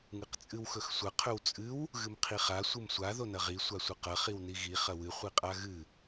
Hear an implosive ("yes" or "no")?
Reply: no